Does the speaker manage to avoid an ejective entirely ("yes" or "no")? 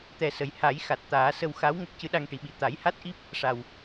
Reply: yes